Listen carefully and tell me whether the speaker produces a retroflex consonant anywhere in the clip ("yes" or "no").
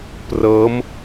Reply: no